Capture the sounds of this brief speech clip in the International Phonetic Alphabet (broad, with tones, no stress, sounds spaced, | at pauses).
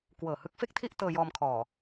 k w ɤː˨˩ h ɯ˦˥ k̚ f e˥˩ k̚ tʰ i˥˩ ʔ t ɤː˧ j ɔː˧ m kʰ ɔː˨˩